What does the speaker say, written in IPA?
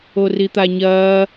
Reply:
orit̪aɲɐː

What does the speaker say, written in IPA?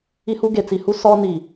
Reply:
i˦hu˦ ɡe˨t͡si˨hu˦ sɔ˦ni˨

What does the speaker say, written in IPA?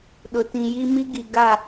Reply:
ɗʊ˨tĩ˨ji˦ mi˦ɡi˨ ɡa˦˨

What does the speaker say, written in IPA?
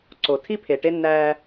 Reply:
ǀo˨ tʰi˦pʰe˨ ʈe˦nːæː˦

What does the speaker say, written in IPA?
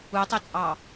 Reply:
utˤyt͡sʼɑ

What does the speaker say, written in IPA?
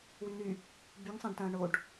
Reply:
wyn̪y | byŋsˤãɖtɐ̃ː ɳoɖ

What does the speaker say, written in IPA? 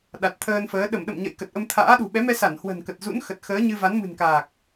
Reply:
ɗa˨˩t̚t̪ʰəː˧nfəː˨˦ ɗə˧˩mɗə̰˧˨m ɲə̰˧˨jkə˨˩t̚ʔə˧m t̪ʰa̰ː˧˥ ɗṳ˨˩ɓɛ˨˦mɛ˧sa˧˩n hwə̤˨˩nkə˨˩t̚ zṵ˧˥nxə˨˩t̚xəː˨˦ɲɨ˧ va˨˦nmɨ̤˨˩nkaː˨˩k̚

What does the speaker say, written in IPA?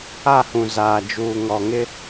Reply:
a˦˨hũ˨ zaː˨d͡ʒuː˨ŋɔ˨ ŋɪ˦

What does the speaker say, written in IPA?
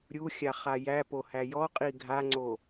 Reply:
ɾʲuxʲa χajæpo hæjɔqʼi ɡʱaŋ͡ǀo

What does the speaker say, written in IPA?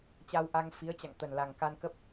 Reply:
t͡ɕa˧wʔa˧ŋ fi˨˦ə̯t͡ɕa̰˧˨ŋ t̪ə˨˩nla˨˩ŋka˧n kə˦˥p̚

